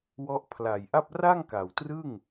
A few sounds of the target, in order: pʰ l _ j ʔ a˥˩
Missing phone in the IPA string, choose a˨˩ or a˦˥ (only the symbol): a˨˩